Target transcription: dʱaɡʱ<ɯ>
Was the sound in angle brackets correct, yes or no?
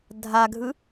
yes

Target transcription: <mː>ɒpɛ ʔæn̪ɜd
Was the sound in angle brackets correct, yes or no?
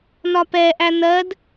no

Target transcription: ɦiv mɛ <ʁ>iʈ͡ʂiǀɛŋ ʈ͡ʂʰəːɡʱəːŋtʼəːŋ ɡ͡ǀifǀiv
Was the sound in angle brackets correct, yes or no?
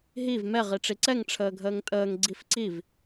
yes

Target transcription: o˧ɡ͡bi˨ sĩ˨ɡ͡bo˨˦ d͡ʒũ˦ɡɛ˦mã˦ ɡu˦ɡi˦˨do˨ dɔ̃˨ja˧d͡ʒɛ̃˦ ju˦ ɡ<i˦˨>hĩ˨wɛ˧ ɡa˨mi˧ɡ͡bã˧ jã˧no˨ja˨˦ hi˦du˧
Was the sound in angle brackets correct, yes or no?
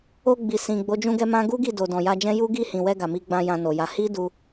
yes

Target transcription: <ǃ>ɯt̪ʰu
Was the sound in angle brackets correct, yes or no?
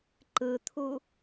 yes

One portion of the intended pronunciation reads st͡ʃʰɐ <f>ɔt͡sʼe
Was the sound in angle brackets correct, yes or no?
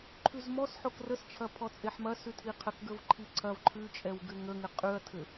no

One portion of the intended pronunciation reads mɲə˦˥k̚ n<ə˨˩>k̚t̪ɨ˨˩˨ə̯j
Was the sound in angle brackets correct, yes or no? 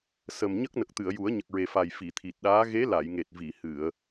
yes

